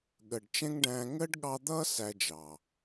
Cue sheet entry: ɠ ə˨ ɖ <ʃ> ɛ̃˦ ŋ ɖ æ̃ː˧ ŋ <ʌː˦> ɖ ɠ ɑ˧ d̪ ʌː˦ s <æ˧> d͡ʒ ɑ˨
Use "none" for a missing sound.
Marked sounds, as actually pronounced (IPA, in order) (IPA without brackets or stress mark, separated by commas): t͡ʃ, əː˦, æ˧